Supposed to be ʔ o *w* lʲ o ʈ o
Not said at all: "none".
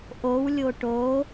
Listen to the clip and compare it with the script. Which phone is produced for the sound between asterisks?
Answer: w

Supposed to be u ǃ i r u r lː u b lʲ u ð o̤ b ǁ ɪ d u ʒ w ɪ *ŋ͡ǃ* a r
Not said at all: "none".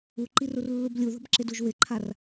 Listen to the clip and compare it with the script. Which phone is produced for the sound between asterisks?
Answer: ǃʰ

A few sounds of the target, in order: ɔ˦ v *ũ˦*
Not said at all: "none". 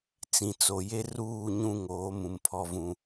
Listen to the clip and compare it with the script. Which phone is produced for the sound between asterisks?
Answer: ũ˦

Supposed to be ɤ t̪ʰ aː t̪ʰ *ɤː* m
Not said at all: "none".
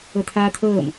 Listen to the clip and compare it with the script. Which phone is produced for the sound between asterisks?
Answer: ɤː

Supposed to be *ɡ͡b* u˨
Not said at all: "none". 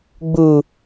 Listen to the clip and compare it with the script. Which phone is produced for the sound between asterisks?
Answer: ɡ͡b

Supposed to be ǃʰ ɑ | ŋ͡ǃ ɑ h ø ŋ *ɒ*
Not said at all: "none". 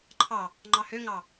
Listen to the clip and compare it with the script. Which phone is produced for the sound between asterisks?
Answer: ɑ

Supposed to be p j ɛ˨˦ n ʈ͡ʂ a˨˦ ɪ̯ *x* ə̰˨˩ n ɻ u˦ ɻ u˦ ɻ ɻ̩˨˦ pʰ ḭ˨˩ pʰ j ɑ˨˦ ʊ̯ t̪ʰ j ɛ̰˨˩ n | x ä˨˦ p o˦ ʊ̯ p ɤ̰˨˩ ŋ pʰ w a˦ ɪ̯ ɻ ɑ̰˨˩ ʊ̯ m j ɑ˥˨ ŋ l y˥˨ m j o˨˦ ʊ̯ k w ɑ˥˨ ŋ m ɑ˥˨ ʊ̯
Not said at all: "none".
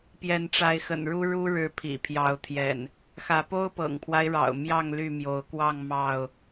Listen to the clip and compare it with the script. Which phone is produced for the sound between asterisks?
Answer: x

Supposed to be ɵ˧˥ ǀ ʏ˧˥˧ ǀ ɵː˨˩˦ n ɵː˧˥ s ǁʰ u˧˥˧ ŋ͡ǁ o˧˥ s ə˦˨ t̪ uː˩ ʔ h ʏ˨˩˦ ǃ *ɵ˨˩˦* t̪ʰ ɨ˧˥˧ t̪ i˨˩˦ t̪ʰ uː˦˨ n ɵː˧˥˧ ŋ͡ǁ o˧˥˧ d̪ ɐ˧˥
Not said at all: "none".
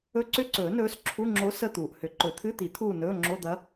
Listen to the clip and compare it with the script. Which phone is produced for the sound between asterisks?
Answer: ɵ˨˩˦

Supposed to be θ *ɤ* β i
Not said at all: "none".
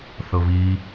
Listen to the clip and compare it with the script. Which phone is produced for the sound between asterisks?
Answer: ɤ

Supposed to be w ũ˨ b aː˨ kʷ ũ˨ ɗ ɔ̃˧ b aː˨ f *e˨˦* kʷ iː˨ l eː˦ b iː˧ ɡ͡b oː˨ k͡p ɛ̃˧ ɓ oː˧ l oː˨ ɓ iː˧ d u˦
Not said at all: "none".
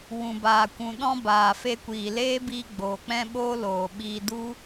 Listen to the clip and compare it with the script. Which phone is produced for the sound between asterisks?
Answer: e˧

